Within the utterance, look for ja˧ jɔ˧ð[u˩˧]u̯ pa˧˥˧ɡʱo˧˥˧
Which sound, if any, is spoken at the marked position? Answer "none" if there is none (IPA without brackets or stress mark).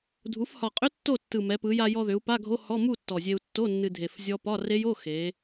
ʏ˩˧